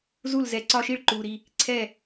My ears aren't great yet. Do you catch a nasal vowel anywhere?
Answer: no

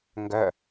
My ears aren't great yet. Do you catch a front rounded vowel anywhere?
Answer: yes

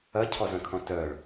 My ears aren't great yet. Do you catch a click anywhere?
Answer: no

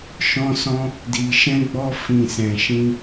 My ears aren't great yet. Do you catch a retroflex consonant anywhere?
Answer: no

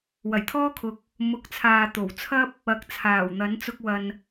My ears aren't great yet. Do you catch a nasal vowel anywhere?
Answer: no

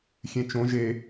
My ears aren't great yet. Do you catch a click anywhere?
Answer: no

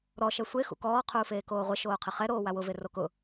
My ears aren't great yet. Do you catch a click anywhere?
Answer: no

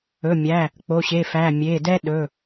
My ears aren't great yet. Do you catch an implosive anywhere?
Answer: yes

